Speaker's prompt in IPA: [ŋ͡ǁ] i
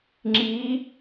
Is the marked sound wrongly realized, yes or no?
no